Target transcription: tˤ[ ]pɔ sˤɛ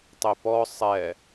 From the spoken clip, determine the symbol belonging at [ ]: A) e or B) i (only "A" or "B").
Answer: A